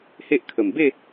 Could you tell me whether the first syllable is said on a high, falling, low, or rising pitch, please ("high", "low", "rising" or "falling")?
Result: high